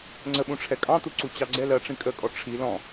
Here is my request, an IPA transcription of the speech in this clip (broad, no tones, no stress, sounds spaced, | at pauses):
ŋ͡ǀ ə ɓ ũ ʈ͡ʂʰ ɛ kʼ ɑ̃ t̪ u ǀ u t͡ɕ ɑ ɡ͡ǀ ɛ l ɜ ʈ͡ʂ ĩ kʼ ə kʼ ɔ ʈ͡ʂʰ i l ɔ̃